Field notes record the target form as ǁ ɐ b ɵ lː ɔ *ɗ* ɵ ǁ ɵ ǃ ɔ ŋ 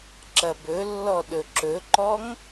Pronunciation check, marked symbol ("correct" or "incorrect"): correct